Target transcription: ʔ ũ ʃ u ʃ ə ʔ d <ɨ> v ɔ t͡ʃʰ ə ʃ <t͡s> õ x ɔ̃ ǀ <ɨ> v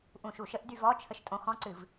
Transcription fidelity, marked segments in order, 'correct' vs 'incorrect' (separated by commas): incorrect, incorrect, correct